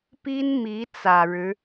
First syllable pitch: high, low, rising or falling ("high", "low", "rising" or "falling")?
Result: high